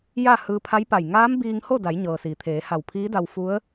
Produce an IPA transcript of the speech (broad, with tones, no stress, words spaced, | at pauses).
ja˥˨ hɯː˧pʰa˧˥jpa˧˩j ŋaː˧˥mbiː˧ŋ ho˥˨da˩˧j ɲɤː˩siː˩ t̪ʰeː˩˧ ha˧˩wpʰiː˧˥da˧w fu˧˥ə̯